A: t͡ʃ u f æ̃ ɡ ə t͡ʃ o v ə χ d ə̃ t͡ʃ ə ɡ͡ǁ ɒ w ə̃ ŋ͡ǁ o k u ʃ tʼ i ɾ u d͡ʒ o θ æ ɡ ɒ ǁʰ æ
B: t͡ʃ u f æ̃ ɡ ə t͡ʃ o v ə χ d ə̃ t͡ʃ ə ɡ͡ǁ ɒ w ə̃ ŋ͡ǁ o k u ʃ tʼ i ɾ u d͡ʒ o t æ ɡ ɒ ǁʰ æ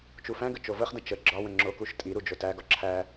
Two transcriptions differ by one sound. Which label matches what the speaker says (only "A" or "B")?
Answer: B